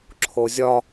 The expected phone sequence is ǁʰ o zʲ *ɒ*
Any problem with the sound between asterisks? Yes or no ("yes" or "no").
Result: no